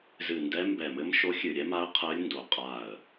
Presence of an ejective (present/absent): present